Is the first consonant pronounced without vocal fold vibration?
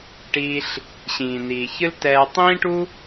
yes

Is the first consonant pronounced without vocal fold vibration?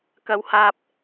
yes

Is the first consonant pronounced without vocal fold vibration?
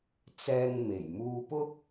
yes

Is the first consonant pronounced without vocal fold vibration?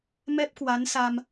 no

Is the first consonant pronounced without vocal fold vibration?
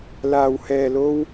no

